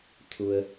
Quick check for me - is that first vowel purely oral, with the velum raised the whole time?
yes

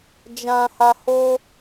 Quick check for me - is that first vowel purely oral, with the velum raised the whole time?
no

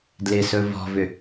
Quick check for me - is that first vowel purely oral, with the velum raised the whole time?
yes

